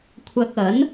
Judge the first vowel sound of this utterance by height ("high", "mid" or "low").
low